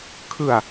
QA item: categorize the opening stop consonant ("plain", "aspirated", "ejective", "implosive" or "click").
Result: aspirated